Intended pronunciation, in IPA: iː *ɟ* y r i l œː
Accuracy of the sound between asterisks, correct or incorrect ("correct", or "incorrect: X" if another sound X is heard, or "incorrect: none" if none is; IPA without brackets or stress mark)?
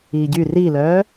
correct